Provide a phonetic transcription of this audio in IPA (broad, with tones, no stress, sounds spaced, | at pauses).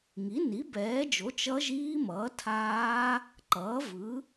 ŋ i˩˥ n i˩˥ b ɛː˩˥ d͡ʒ o˩˥ t͡ʃ ʌ˦˥ ʒ iː˦˥ m ʌː˩˥ tʰ aː˦˥ | ǃ ʌː˩˥ v ɯ˩˥